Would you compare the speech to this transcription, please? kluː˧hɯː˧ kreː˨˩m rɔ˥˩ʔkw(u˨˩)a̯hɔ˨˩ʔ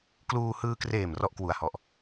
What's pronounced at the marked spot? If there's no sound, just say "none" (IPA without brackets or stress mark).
u˨˩